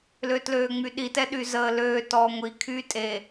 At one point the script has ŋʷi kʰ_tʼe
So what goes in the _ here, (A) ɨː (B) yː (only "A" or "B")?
B